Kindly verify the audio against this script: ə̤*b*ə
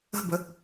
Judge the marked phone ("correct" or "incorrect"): correct